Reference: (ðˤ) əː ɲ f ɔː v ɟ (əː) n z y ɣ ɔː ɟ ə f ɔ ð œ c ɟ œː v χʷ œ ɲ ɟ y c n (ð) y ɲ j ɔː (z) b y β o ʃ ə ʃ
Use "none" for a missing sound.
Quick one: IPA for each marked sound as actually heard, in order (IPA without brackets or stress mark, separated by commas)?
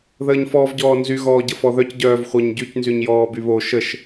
ð, ɔː, z, none